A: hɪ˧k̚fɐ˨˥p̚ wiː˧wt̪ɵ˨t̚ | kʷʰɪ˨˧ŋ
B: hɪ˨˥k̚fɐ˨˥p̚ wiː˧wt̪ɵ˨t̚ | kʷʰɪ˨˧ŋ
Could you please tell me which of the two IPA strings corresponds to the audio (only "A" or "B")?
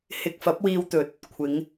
A